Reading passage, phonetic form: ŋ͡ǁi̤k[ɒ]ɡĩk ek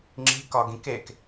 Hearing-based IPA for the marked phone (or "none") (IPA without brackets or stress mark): ɒ